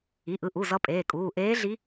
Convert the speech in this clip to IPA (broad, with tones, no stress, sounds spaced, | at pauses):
i˩˧˩ ʔ ɯ˩˧˩ ʔ u˩˧˩ z ʌ˧˥ pʼ eː˩˧˩ kʼ uː˩˧˩ ʔ eː˧˥ ɮ i˧˥